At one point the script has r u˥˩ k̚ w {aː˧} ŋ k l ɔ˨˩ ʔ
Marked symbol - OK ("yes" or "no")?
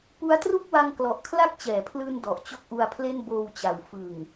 no